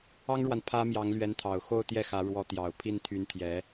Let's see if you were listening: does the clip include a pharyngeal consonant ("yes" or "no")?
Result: no